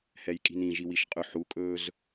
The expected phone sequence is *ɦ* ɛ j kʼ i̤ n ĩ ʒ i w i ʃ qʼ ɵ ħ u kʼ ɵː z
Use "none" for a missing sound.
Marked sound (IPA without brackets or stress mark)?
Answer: h